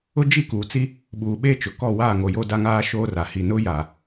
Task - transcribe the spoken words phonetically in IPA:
ʊ˦ d͡ʒ i˦˨ k uː˨ t͡s i˦ | ɓ uː˨ ɓ eː˦ t͡ʃ ʊ˨ k ɔ˦˨ w aː˦˨ ŋ o˨ j o˦ d a˦ ŋ aː˦ ʃ oː˦ r a˨ h i˨ n ʊ˦ j a˨

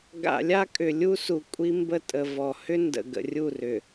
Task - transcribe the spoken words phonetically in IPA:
ɡ a̰˨ lʲ a˦ kʼ ʏ˨ lʲ u˦ s u˨ kʷʼ i˦ m b ə˦˨ tʼ ə˨ v ɔ˨ h ʏ˦ n d ə̰˨ ɡ ə̰˨ rʲ u˦˨ r ʏ˨

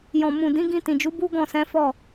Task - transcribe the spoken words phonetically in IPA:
j ɔ̃˨ m ũ˨ d ĩ˨˦ ɡ ĩ˧ t ĩ˨ d͡ʒ u˨˦ b u˦ ɡ ɔ̃˦˨ s ɛ̃˨˦ f ɔ˦˨

